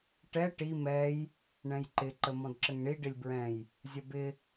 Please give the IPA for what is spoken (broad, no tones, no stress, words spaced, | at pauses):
ʈɛ ʈi mɛj | ɳɛ̃jǃɪ ǃəmɔ̃dǁəŋɳi ɖɪlʲbɹɛ̃j | zʲʌbɪ